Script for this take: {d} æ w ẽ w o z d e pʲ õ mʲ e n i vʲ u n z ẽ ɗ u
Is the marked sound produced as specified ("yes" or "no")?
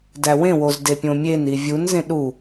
yes